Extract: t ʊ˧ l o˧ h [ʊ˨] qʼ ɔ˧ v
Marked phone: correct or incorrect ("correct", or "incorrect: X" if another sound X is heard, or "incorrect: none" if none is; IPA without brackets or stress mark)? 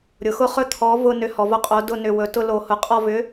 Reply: correct